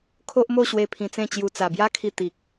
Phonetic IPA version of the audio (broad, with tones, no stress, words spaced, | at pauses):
kʰo˦ʔmo˥˧ɕwe˧ pʰĩ˧t͡sẽ˥˧t͡ɕju˧ t͡sa˨˩bja˦kʰi˧ t̪i˨k̚